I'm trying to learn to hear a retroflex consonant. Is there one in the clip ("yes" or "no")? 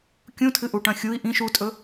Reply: yes